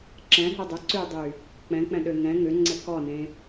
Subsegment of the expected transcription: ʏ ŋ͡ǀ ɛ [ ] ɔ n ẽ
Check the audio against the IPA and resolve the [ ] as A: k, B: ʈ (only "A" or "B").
A